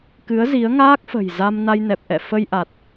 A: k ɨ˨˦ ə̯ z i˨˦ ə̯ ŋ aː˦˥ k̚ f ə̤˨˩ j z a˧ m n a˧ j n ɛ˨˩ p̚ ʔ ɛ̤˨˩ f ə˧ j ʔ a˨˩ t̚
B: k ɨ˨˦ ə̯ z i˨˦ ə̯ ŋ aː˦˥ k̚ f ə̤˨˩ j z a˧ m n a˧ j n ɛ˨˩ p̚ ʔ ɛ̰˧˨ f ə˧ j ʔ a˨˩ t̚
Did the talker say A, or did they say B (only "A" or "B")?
B